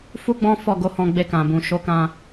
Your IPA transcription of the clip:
f u˦ ɡ͡b ɔ̃˦ f ɔ˦˨ ɡ o˨˦ h ɔ̃˧ ɡ͡b e˧ k ã˨ b ũ˨ ʃ o˨˦ k ã˧

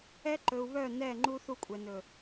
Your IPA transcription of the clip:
ɛ˦ ǃ ɵ˨ u̯ β œ˦˨ n ɛ˦˨ ŋ͡ǃ u˦ θ u˦˨ kʷʼ ɛ˨ n ɵ˨

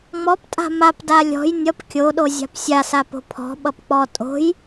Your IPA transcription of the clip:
ŋ͡m ɔ p tʼ a̤ m a p d a lʲ ɔ̤ j nʲ ʌ p kʲ o ɗ o zʲ a̤ p sʲ a s a p o̤ pʰ ɔ̤ ɓ ʌ p k͡p ɔ tʼ o̤ j

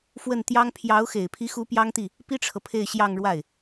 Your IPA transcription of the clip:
f w ə˥˩ n t̪ j ɑ˥ ŋ pʰ j ɑ˧˥ ʊ̯ x e˨˩ ɪ̯ pʰ i˧˥ x u˧˥ p j ɑ˥ ŋ t̪ i˥˩ | p i˥ ʈ͡ʂʰ ɤ˨ pʰ e˥˧ ɪ̯ ɕ j ɑ˥˧ ŋ ɻ w a˥˩ ɪ̯

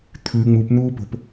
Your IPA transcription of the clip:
t̪ʰ ʉ ŋ͡m u p n̪ uː p o̤ p

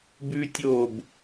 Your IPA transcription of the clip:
b ʉ˥ tʲ oː˥˧ b

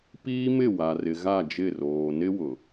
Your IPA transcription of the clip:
p iː˦ m ɪ˦˨ w a˨ r ɪ˨ ɣ a˦˨ d͡ʒ ɪ˦˨ r oː˨ n ɪ˦ w ʊ˨

